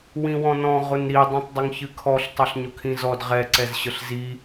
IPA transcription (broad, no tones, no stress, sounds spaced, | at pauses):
w ĩ w ɔ̃ n ɔ̃ ʁ ʊ n ɾ i dˤ ĩ tˤ dˤ ʊ ŋ ç ɨ kʰ ɔ ɬ tˤ ɑ ɬ ɲ ʊ kʰ ĩ z ɔ d ʁ ɛ ǀ ɛ z ɕ ə ɬ z i